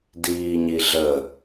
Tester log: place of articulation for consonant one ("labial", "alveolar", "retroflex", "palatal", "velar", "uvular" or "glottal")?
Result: alveolar